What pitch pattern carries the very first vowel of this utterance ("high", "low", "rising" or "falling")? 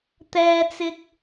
high